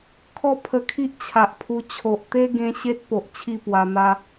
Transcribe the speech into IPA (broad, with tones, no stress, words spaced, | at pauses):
kʰɔ˦pʰə˧kʰi˦ʔ t͡ɕʰa˨ʔpʰu˧ t͡ɕʰo˨ʔt̪e˦ɡẽ˧ ɕe˦t̚po˨ʔ t͡ɕʰi˥˧pwa˧n̪a˦